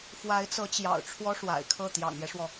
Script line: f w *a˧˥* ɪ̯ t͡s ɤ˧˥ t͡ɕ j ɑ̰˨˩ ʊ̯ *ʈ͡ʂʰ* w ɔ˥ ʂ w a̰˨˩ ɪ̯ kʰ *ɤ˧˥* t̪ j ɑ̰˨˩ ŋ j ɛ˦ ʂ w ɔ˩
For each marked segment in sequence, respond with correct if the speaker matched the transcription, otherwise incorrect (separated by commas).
correct, correct, incorrect